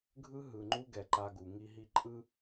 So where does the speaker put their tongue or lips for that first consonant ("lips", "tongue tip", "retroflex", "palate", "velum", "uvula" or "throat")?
velum